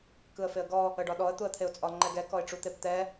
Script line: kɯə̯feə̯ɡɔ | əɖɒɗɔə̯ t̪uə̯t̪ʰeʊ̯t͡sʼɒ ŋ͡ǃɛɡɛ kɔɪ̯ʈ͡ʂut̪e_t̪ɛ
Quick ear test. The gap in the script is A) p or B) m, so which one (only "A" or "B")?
A